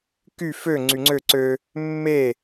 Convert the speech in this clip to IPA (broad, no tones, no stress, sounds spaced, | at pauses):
k y f ø ŋ͡ǀ y ŋ͡ǀ ø ǀ ø | mː e